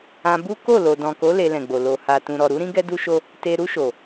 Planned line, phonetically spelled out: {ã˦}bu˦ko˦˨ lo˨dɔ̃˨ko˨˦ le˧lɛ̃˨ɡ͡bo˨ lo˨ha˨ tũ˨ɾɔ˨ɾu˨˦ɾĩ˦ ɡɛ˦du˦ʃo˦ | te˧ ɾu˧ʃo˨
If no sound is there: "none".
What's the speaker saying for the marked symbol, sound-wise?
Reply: ã˧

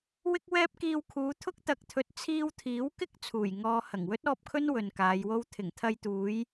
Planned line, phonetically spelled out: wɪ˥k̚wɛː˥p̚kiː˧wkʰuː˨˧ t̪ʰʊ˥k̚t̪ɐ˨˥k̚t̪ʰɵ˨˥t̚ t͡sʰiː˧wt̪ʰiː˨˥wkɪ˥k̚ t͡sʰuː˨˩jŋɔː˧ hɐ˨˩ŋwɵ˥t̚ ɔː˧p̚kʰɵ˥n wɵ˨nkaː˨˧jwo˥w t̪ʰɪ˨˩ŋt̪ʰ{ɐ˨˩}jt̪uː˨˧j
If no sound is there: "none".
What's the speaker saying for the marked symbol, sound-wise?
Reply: ɐ˧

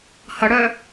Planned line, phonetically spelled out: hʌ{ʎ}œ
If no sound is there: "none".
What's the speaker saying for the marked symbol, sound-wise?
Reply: ɽ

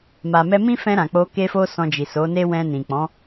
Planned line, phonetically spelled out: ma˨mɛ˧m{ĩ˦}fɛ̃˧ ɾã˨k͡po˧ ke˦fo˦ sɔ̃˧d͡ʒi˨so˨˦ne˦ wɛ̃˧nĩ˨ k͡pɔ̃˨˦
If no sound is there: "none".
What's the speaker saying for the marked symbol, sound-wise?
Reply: ĩ˦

